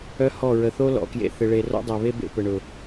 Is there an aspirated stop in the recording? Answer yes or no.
no